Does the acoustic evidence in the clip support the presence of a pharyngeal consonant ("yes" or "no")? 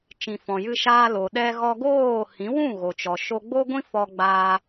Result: no